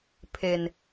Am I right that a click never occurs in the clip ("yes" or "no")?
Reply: yes